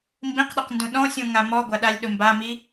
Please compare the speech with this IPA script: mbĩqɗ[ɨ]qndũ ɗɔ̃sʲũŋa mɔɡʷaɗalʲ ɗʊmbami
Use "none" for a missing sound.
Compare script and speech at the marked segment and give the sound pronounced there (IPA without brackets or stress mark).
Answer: ɪ